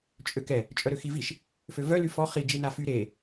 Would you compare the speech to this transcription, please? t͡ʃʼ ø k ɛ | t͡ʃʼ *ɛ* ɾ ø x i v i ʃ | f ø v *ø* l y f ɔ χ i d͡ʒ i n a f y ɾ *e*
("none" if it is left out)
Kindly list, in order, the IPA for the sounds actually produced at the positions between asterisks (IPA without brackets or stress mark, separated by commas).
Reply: œ, œ, e